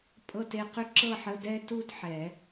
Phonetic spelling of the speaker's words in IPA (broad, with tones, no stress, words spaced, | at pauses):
pʼɤ˥˧te˥˧q ʏ˥ǁɤ˥˧ħə˧˥˧ dɛ˥tu˥dħɛ˨˩˦